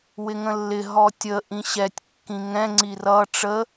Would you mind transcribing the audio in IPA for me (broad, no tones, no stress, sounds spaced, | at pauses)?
w ɪ ŋ ə̃ lː ɪ ɦ ɔ tʲ ə ʔ ĩ ɕ ɛ tʲ kː ĩ ŋ ɛ̃ ŋ͡ǀ i r ʌ ʈ͡ʂ ə